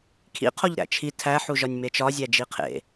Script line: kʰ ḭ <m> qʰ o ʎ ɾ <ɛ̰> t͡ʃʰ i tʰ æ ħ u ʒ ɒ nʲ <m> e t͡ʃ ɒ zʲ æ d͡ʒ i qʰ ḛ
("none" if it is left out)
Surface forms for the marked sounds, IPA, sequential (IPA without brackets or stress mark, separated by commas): none, æ̰, m